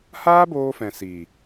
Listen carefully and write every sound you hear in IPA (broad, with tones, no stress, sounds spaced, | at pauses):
h aː˦ b oː˧ f ɛ̃˨ s iː˨